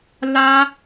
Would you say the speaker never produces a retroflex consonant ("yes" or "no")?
yes